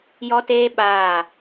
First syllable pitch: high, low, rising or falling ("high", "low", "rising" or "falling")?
high